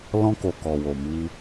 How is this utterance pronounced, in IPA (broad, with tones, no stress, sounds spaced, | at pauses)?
l ɔ̃˧ k o˨ k ɔ˨ w o˨ m i˧